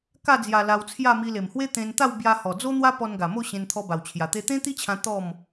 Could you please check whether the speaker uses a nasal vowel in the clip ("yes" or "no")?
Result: yes